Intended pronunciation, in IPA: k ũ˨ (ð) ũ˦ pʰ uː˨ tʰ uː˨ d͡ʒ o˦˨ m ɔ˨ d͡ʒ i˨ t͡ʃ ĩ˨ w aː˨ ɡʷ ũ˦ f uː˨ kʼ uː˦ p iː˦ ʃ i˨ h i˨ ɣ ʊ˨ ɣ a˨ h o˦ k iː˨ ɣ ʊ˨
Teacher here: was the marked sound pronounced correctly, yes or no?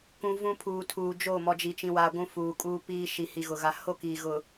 no